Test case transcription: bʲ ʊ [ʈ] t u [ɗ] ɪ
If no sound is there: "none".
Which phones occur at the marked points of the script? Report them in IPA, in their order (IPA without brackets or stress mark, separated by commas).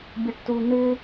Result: ʈ, n̪